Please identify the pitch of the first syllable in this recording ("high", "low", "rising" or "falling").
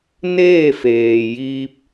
falling